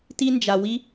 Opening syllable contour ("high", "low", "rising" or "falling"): high